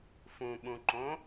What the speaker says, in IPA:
fũɓũǃõ

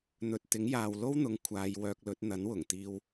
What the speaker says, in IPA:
n̪ɵ˨t̚ t̪ɪ˨˥ŋjaː˨wlo˥wn̪ʊ˨˧ŋ kʷʰaː˨˧jwœː˧k̚lɵ˨˥t̚ n̪ɐ˨˥nwʊ˨˩ŋ t̪iː˧w

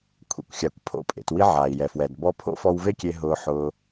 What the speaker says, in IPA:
kʷʰḛ˧kʷxʲa˩kʷ pʰo̰˧pʼḛ˩twi˧ ʕaː˩i̯jɛ˩fwɛ˩d bɔ˧pʰo̰˥fɔ˧w ve˥kʲe˧ ɦʊː˧ħʊː˧

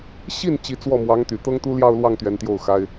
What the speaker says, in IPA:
ɕi˥˩n t͡ɕi˧˥t͡swɔ˥˩mwɑ˧˥ŋt̪y˨˩ t̪ɤ˥ŋt̪u˥ljɑ˥˧ʊ̯lwɑ˥˩ŋ t̪ɥɛ˧˥nt̪jo˥˩ʊ̯xa˥ɪ̯

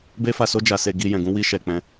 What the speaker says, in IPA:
be˦fa˧so˦ d͡ʒa˧se˧ ɡi˧jɛ̃˨ ɡũ˧wi˧ʃɛ˨ k͡pɛ̃˧

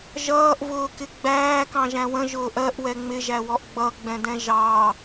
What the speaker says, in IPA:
ʒʌːʔvʊːkɪ ɡ͡bæːkɑ̃ʒæ̃ wə̃ʒʊːʔ ɜʔwɛ ŋ͡mɪʒæwɔʔ ɡ͡bʌɡ͡bɛ̃dɛ̃ ʒɑ

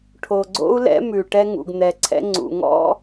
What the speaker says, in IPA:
ʈʰo˨ɡ͡ǀo̰˦u̯lɛ̰˦ mʉ˨ ʈɛ˦ŋṵ˨ɡn̪ɛ˨ǀʰɛ̰˦ ŋ͡ǀṵ˨ŋɔ̰˦

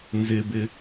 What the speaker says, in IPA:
nzɪbɪ

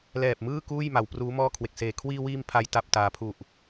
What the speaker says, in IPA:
lɛː˨˩p̚mɯː˥˩ kuː˥˩jma˩˦w pruː˦˥mɔː˥˩kʰwe˨˩k̚seː˨˩ kʰwiː˧wiː˧m pʰa˦˥jta˨˩p̚taː˩˦ pʰu˨˩ʔ

